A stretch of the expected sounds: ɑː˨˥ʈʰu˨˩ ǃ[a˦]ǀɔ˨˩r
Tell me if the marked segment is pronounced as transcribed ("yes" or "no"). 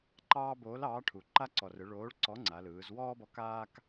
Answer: yes